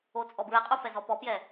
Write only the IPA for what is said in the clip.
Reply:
o t͡sʼ ɔ b ɹ ɛ qʼ u f ɛ z ɔ p ɔ p j ɛ

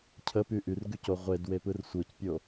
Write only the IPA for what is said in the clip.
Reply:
cʰ ə p y ʔ y r ɡ y c o ʁʷ e d w e p ɯ r sʷ ɯ c pʲ o

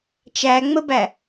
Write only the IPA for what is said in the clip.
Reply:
t͡ʃ æ ŋ͡m ə b æ

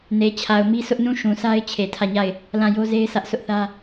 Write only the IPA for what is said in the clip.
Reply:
n e˨ t͡ɕʰ a˨ ʊ̯ m i˦ sʰ ʊ˦ ʔ n ũ˦˨ ʃ ũ˨ sʰ a˦ ɪ̯ t͡ɕʰ e˨ tʰ ä˦˨ ɲ a˦˨ ɪ̯ | l ã˦˨ j o˦ z e˦ ɪ̯ sʰ ä˦ ʔ s ʊ˦ ʔ θ ä˦

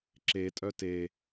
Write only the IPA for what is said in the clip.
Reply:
ǁ e tʼ œ t e

